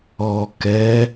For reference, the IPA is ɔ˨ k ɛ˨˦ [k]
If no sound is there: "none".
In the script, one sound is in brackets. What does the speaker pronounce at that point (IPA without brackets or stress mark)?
none